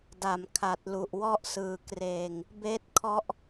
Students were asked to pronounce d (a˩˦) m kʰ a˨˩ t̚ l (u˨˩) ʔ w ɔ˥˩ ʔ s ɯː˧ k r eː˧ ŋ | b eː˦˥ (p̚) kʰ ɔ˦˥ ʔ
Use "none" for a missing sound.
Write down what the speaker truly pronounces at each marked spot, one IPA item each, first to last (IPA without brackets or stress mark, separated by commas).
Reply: a˨˩, u˨˩, t̚